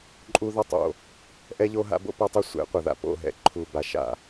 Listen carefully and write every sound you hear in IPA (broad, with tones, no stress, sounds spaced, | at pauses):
ǃʼ u˦ ð ɐ˦ tˤ o̰˨ | ʔ ɛ˦ ʎ o˦ ɦ a̰˦ b o̰˦ p o˦ tˤ o˦ sʷ ɛ̰˨˦ qʷ ɐ˨ ð a̰˨ p o̰˨ ɦ ɛ̰˨ ǃʰ u˨ b a˨ ʃ a̰˨